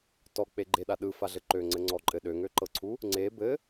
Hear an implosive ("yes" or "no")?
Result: yes